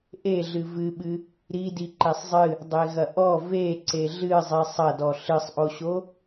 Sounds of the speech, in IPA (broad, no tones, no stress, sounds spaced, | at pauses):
ʔ e ɮ ɨ v ɨ ɓ ɨ | ɾ i d i ǃ e sˤ zˤ ɨ | dˤ e ɣ ɐ ʔ ɔ v e ǀ e ɮ ɨ zˤ i sˤ ɐ d ɔ ɬ ɨ sˤ ʔ o ɕ o